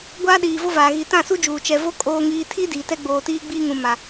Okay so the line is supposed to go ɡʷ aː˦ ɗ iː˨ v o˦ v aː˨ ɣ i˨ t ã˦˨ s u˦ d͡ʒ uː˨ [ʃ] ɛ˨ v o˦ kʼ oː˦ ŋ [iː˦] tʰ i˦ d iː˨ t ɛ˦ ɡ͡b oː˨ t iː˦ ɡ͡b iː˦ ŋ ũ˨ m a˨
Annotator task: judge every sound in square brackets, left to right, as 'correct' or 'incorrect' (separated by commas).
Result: incorrect, correct